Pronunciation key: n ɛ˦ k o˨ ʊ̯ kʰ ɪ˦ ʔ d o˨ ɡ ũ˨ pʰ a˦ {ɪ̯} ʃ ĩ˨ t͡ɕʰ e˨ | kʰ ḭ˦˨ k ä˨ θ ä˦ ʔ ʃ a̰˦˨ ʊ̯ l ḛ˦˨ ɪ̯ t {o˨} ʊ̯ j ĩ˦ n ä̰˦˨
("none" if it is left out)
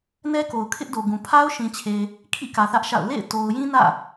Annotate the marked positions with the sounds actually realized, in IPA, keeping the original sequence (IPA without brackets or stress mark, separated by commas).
ʊ̯, o˨